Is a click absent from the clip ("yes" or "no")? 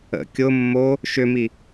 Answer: yes